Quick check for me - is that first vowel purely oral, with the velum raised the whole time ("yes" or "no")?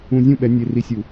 no